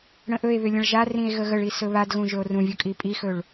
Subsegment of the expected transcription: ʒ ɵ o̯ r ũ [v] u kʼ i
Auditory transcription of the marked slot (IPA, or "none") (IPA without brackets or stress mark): vʲ